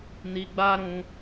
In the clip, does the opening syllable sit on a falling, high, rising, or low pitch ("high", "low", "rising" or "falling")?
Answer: high